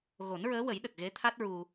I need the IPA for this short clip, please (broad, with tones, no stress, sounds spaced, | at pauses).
ɣ o˨˩˦ n ɹ əː˧˥ w ə˨˩˦ j ɗ ə˨˩ k̚ ɣ e˧˥ t̪ʰ a˦˥ t̚ ɹ u˧